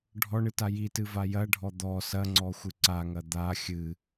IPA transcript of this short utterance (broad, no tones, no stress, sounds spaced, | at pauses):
ɖʱ ɔ ɳ ɨ t a j i t ɨ v a j ɐ ɖʱ ɔ d̪ ɔ s ɐ ŋ͡ǀ ɔ xʷ ɨ ǀ a ŋ ɐ d̪ a xʲ ɨ